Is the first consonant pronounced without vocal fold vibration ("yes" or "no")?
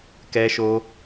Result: yes